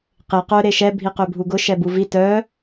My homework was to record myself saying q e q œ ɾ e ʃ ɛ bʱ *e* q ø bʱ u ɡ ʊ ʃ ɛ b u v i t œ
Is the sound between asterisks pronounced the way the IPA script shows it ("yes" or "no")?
no